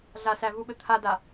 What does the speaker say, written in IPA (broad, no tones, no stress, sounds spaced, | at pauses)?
ɮ a s æ v u ɓ ɘ t̪ʰ a d a